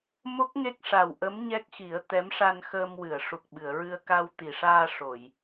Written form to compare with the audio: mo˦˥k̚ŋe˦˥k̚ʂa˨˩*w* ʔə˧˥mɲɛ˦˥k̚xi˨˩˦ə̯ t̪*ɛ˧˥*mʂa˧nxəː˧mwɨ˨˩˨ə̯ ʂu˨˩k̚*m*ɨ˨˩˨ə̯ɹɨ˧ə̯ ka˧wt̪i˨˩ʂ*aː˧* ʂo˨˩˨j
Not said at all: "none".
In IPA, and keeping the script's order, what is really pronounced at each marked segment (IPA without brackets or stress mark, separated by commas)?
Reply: w, ɛ˧˥, ɓ, aː˧